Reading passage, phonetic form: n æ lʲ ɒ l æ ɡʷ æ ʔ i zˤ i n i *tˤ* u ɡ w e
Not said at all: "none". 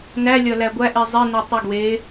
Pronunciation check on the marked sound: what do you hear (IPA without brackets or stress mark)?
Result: tˤ